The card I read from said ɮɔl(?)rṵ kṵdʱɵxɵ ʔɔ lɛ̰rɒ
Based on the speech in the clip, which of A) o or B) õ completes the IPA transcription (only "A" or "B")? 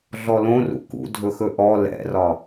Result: B